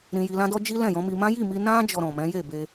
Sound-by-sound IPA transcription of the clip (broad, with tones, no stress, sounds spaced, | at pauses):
ɾ ĩ˨ j i˨ l ã˧ d ɔ˧ d͡ʒ i˦ l ɛ̃˦˨ j ɔ̃˨˦ m i˧ m ã˦ j i˦˨ m i˧ n ã˦ d͡ʒ ɔ˧ ɾ ɔ̃˨ m ɛ̃˨˦ j e˦˨ b e˧